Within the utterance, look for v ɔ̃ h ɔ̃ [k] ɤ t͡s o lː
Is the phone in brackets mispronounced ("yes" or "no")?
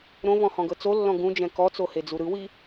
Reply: yes